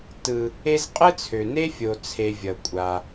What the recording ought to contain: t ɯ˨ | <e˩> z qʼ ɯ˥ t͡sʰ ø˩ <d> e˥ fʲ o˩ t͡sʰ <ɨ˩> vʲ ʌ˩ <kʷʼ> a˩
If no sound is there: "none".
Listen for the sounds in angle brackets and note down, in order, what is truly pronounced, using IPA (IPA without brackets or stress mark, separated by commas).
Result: e˦, n, e˩, kʷʼ